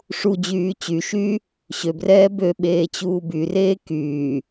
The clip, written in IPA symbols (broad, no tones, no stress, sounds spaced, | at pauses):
ʂ u d͡ʑ yː t͡ɕ y ʃ yː | ɕ ø b r ɛː b ø ɓ eː t͡ɕ uː b y r eː k yː